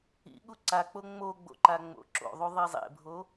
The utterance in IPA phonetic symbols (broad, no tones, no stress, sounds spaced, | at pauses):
ḭ ɠ u ǀ a k͡p o ŋ͡m o ɡ͡b o̰ ǃ a ŋ͡m o̰ ǁ o̰ ðˤ u ðˤ i zˤ ḛ bʱ o